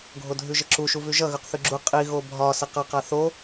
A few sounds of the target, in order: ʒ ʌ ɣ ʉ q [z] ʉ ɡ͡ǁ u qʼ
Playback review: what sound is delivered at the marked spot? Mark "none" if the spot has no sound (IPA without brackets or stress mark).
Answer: θ